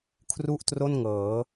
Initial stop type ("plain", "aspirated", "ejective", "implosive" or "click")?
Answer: aspirated